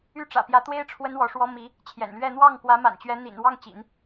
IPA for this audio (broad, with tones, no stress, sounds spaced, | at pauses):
y˥˩ ʈ͡ʂ ä̰˨˩ p j ä˧˥ t̪ w e˥ ɪ̯ ʈ͡ʂʰ w ə˥ n w ɔ˧˥ ʂ w ɔ˥ m i˧˥ | t͡ɕʰ j ɛ̰˨˩ n l ɥ ɛ˥˧ n̪ w ɑ˥˩ ŋ k w ä˧˥ m a̰˨˩ n t͡ɕ ɥ ɛ˧˥ n̪ ḭ˨˩ n w ɑ˥˩ ŋ t͡ɕ ḭ˨˩˦ n